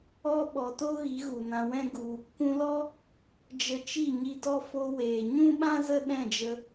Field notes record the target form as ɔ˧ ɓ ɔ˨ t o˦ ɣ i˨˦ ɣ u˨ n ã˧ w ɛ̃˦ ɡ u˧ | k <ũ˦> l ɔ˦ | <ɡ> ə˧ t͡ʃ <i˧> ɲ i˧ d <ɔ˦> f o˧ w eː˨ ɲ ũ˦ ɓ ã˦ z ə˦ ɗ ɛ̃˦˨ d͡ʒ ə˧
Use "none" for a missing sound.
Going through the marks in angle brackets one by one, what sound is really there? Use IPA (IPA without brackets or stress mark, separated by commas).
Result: ũ˧, d͡ʒ, i˦˨, ɔ˦